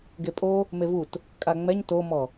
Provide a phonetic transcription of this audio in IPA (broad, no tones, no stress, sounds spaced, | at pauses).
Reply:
ɡ e pʼ o | m e v u t | kʼ a ŋ͡m ɛ ɲ t o m ɔ